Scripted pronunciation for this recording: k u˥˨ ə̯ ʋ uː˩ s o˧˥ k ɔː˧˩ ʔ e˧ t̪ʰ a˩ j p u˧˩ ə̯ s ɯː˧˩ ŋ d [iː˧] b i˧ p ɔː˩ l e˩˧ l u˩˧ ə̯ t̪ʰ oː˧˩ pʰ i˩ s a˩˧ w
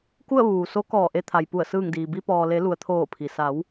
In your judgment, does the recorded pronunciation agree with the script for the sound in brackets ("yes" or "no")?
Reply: no